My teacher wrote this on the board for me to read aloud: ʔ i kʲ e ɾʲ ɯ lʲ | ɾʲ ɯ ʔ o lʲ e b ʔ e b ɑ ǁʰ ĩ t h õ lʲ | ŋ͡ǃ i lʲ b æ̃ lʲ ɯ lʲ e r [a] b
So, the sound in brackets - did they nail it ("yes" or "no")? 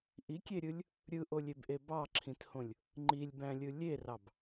no